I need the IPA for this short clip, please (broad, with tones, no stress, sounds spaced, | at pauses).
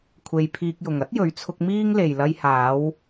kʷʰ e˧ j pʰ iː˧ k̚ j ʊ˨ ŋ ɐ˨˥ t̚ j ɵ˨˧ ɥ t͡sʰ ʊ˧ k̚ m iː˥ ŋ l e˨ j l ɐ˧ j h aː˨˧ w